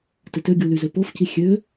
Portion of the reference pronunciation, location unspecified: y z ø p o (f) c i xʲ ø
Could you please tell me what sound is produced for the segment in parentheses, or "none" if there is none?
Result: f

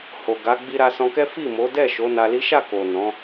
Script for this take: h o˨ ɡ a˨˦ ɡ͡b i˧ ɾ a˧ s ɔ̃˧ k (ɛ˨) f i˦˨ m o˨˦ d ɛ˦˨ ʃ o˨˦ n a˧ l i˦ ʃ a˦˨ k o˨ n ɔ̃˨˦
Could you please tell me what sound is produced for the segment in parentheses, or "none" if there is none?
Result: ɛ˦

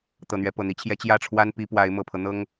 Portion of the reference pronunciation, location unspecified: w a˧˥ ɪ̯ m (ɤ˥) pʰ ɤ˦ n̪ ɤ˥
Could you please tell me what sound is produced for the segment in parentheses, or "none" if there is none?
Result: ɤ˨˩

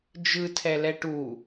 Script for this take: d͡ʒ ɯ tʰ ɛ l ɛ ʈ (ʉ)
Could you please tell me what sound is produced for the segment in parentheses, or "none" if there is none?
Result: u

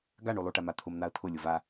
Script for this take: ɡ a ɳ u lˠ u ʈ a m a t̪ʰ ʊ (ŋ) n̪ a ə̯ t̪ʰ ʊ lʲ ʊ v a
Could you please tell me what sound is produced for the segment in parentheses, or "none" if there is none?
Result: m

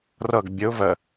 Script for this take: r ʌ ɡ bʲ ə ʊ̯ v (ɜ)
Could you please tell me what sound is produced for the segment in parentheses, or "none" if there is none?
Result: ɜ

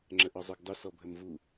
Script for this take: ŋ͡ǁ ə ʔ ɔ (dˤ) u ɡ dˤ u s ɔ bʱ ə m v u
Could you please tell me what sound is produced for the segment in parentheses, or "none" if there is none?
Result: zˤ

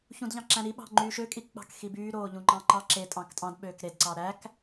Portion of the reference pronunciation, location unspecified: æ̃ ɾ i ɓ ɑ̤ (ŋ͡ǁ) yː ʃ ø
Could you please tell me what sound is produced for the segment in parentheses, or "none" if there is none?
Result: ŋ͡ǃ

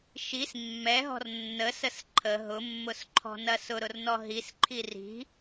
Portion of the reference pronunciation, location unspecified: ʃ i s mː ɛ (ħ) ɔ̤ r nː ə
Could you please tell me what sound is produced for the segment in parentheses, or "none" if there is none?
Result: ɦ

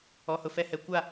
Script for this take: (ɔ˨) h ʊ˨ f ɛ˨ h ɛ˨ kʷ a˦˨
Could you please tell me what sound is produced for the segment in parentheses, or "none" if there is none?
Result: ɔ˨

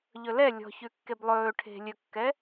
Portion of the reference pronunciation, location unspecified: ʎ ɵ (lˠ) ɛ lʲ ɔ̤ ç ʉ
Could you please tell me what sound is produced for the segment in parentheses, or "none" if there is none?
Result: l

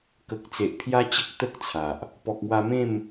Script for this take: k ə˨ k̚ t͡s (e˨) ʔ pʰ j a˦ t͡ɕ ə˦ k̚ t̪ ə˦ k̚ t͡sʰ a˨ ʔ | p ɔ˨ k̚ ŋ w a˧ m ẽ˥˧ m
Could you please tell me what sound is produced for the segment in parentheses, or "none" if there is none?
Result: e˨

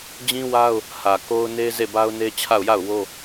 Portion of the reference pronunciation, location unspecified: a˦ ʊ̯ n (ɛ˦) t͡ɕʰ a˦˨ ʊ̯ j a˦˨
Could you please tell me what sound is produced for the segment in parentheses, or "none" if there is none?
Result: e˦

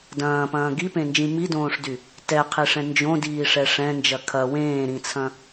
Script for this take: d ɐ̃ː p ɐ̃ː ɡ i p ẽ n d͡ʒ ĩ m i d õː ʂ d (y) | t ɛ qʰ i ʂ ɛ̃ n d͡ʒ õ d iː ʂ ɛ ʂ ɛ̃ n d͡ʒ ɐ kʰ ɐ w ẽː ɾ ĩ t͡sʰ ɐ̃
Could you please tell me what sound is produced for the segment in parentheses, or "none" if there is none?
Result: y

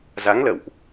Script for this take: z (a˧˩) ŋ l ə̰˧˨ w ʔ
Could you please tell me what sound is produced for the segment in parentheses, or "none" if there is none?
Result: a˨˦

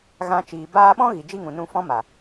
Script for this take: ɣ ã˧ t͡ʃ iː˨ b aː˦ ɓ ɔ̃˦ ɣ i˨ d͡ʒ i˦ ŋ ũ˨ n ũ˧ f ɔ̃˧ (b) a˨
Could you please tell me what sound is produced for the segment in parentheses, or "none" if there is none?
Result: m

